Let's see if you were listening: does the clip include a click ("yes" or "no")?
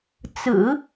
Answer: no